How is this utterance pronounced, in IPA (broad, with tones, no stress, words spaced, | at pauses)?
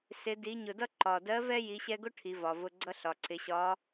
sɪ˩˧di˩˧ɲʊ˩dʌ˥ ǃɒ˩ dɜ˧˥vɛ˥ ji˩˧ɕɛ˧ɡʊ˥ ʈʰi˩˧vɒ˩vʊ˧ɡ͡ǀʌ˥ ɬɒ˩ǀɪ˩˧ɕɒ˧˥